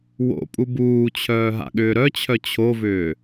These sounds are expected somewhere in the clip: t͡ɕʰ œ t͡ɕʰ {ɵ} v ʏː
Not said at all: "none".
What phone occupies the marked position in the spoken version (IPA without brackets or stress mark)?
o